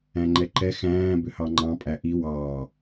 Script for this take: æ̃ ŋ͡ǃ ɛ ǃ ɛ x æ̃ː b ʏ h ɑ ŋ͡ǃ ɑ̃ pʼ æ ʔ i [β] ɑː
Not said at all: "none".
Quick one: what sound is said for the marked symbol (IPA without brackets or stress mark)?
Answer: w